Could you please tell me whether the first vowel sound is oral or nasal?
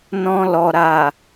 nasal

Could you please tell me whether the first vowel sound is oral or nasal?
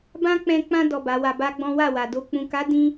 nasal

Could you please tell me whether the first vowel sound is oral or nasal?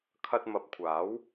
oral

